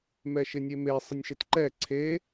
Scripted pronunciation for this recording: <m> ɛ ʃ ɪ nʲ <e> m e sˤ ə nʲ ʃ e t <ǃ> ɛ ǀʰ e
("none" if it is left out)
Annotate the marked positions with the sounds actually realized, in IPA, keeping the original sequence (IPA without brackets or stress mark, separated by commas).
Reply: m, e, ǃ